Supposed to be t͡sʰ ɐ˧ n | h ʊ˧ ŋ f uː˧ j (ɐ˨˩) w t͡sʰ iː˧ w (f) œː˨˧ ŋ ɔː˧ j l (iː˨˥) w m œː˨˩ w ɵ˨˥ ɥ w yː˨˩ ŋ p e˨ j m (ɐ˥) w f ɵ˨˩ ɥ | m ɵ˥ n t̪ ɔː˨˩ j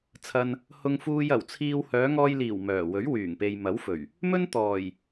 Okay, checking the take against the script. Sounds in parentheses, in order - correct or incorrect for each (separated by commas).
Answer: correct, incorrect, incorrect, incorrect